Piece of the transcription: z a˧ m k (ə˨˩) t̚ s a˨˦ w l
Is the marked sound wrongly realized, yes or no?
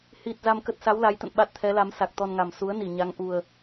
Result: yes